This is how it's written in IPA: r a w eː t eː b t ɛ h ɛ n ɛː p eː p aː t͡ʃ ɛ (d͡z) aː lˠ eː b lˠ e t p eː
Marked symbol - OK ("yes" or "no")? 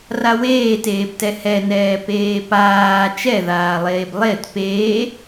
no